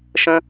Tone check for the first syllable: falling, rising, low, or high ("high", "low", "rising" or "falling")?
high